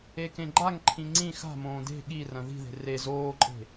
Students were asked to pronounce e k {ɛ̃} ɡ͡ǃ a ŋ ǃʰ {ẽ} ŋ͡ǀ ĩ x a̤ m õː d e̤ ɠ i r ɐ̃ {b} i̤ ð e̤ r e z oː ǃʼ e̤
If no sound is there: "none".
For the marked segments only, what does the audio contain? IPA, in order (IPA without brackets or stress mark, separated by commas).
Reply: ẽ, ĩ, ð